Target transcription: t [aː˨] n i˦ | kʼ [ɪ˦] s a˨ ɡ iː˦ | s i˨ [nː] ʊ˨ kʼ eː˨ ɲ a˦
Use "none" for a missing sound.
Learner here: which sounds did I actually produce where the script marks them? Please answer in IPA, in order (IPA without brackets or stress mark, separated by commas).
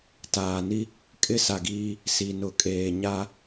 aː˨, ɪ˦, n